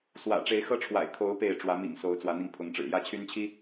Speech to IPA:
swä̰˨˩ʈ͡ʂe˨˦ɪ̯xɤ˦ʈ͡ʂʰwa̰˨˩ɪ̯ kʰo˨˦ʊ̯ pe˥˨ɪ̯ ʈ͡ʂwä˨˦mḭ˨˩ŋso˨˦ʊ̯ t͡swä˨˦n̪i˧ŋpʰʊ˨˦ŋʈ͡ʂɻ̩˨˩ jä˥˨t͡ɕʰy˦nt͡ɕʰi˦

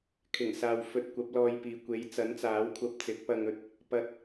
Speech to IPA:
kʰɪ˨˩ŋsaː˨w fɵ˧t̚kʷɐ˨˥p̚lɔː˧jpiː˨ kʷe˨˥jt͡sɐ˨˥nt͡saː˨˥wkʷʰɐ˧p̚ t͡sɪ˨˥k̚pɐ˧ŋɵ˧t̚ | pɐ˨˥t̚

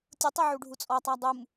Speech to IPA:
tʲutˤiʕu ɖʱut͡sʼɔtˤa dˤum

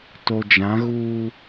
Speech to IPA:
to˨d͡ʒã˨˦ ɣuː˦

